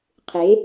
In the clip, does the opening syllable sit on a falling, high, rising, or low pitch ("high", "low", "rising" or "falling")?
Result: rising